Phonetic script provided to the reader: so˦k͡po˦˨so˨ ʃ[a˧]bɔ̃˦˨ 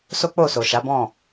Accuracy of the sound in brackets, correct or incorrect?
incorrect